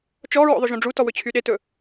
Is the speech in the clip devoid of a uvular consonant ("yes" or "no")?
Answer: yes